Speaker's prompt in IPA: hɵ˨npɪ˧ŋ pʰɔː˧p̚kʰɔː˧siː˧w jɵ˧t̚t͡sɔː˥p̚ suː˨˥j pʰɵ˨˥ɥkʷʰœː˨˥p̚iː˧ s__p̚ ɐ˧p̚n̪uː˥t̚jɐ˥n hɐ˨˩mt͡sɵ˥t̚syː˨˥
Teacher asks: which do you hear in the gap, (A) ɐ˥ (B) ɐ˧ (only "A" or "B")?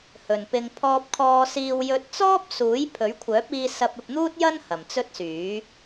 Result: B